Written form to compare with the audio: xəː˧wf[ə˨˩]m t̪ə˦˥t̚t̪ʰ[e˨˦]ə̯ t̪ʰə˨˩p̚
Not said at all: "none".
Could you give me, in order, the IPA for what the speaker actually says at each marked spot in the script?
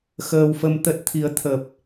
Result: ə˧, i˨˦

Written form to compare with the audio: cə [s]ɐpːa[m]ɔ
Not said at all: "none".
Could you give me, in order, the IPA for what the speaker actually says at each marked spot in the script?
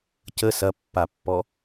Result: s, pː

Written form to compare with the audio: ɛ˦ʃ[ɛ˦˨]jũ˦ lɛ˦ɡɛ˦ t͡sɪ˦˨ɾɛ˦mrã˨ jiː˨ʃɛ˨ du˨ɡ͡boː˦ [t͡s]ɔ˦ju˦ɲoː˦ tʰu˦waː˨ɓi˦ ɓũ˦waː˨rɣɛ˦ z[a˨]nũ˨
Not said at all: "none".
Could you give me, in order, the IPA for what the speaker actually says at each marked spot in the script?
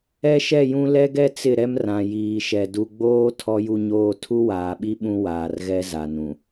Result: ɛ˦˨, tʰ, a˨

